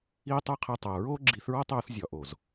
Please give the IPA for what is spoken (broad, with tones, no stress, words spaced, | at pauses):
iː˦tˤu˦qʰe˧tˤæ˨ ɹoː˦ɡ͡ǁi˨˦θɹɒ˦tˤoː˧θ zʲɒ˨ʔo˨z